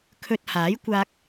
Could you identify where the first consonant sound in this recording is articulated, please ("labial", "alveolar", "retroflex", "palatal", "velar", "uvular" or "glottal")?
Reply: velar